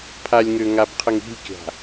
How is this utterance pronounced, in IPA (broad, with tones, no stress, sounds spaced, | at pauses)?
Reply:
pʰ a˨ lʲ ŋ ø˨ ŋ a˨ b qʰ ə˨ ŋ i̤˦˨ lʲ kʲ a̤˨